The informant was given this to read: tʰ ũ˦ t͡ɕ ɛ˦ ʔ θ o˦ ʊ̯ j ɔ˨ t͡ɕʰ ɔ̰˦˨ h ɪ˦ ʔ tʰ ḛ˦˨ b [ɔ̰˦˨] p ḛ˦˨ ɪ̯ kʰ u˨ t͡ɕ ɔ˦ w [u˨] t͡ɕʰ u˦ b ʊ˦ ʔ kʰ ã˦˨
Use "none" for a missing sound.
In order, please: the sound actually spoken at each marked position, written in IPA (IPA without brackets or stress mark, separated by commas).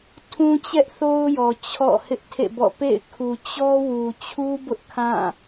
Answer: ɔ̰˦˨, u˨